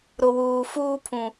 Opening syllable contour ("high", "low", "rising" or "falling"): low